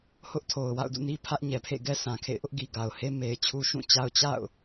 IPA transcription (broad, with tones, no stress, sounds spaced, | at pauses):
h ʊ˦ ʔ tʰ o˨ ʊ̯ w a̰˦˨ ʊ̯ d ṵ˦˨ n i˦ pʰ ä˦ ʔ ɲ ɛ˨ pʰ ḛ˦˨ ɡ ɛ˦ sʰ ã˨ kʰ ḛ˦˨ ɪ̯ ʔ ʊ˦ ʔ ɡ i˨ ɡ a˨ ʊ̯ h e˦ m e˨ ɪ̯ t͡ɕʰ u˦ ʃ ũ˦˨ t͡ɕ a˦ ʊ̯ t͡ɕ a̰˦˨ ʊ̯